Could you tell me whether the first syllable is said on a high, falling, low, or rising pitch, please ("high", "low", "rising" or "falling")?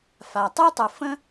low